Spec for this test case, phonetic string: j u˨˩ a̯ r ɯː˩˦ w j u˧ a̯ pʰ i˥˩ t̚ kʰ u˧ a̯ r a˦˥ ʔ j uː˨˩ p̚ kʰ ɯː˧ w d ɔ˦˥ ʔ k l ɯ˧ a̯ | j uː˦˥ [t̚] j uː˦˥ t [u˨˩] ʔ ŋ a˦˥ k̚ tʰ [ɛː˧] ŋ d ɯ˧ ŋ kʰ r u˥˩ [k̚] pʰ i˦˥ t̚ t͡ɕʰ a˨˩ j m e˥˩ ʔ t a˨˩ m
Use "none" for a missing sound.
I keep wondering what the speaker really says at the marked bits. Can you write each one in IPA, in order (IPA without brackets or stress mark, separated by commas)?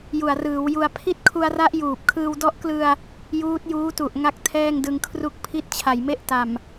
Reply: t̚, u˨˩, ɛː˥˩, k̚